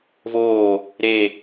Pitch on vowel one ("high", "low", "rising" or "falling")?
falling